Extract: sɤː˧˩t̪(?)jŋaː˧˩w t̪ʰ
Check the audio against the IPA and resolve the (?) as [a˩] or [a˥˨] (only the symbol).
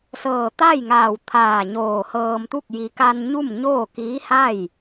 a˥˨